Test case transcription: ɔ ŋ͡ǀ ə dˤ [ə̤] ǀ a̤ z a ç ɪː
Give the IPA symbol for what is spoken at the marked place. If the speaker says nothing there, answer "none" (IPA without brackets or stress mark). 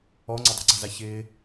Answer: ə̤